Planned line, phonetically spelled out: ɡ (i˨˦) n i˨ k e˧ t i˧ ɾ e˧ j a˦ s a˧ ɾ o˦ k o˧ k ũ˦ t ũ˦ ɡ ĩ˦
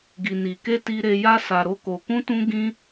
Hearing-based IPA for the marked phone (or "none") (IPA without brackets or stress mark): i˨